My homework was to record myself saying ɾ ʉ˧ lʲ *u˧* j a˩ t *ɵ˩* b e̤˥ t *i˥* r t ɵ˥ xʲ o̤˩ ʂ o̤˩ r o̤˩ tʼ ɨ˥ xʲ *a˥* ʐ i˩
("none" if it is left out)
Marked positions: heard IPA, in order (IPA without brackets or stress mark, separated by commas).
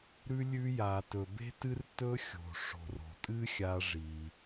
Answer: ʉ˧, ɵ˩, ɨ˥, a˧